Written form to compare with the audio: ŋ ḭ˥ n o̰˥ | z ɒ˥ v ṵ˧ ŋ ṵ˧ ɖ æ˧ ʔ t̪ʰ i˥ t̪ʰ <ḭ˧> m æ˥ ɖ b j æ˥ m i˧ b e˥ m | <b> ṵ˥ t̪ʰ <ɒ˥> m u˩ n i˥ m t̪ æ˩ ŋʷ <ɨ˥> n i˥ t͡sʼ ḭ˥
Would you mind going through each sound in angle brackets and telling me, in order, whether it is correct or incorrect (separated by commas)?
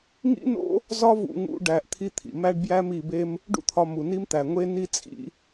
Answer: incorrect, incorrect, incorrect, incorrect